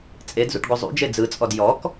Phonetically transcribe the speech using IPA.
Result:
t͡sʼ e d z ṵ ʈ ɡʷ ə zˤ ṵ d͡ʒ e d͡z ɯ t͡sʼ ɔ d j ɔ k

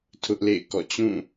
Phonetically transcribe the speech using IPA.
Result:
tʰ ʊ˦ ʔ l ḛ˦˨ ɪ̯ k ɔ̰˦˨ t͡ɕ ũ˦˨

